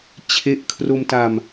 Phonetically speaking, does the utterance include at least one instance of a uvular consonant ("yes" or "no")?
no